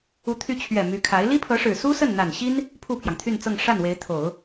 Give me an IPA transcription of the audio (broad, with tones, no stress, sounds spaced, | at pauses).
u˧˥ t̪ʰ y˧˥ t͡ɕʰ ɥ ɛ˨˩ m y˧˥ kʰ a˧˥ ɪ̯ l i˥ pʰ ɤ˧˥ ʂ ɻ̩˨˩ s u˥ s ə˥˩ n n̪ a˨˩ n ɕ i˥ n | pʰ u˥˩ pʰ j ɑ˩ ŋ t̪ʰ y˥˧ n t͡s ɤ˥˧ ŋ ʂ a˥˩ n w e˧˥ ɪ̯ t̪ʰ o˨˩˦ ʊ̯